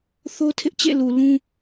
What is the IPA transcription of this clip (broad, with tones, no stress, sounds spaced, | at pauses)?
θ o˦ tʰ ɪ˦ ʔ t͡ɕ ḛ˦˨ l u˨ l ũ˦